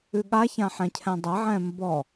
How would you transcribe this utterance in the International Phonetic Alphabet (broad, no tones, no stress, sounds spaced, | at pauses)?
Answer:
ʉ ɠ a ç ã ħ ɛ̃ cʰ ɛ̃ dˤ ɐ ʕ ɛ̃ m b ɔ